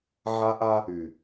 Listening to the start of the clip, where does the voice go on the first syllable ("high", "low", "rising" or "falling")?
high